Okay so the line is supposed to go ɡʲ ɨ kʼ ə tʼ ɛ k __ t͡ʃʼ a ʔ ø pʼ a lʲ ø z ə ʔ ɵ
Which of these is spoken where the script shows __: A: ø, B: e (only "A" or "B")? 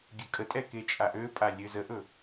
B